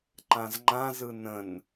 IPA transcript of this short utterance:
ǃãzŋ͡ǃãzɯ nə̃n

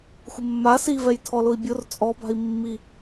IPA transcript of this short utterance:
xʷɪmːa sivɛj tʰɔlʊi̯bʲʊr t͡sʼɔba̤i̯ mːi

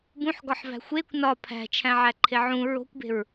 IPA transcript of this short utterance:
bũħɡɒħvæ̤ xʷekʷ nɒ pʰæ̤t͡ʃʰæ̃ʕæǃʰe ʕũ ɹo̤kʷbe̤ɹ

